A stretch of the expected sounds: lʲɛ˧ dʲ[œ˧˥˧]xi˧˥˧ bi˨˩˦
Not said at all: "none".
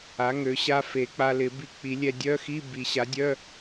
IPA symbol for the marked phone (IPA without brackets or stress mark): œ˧˥˧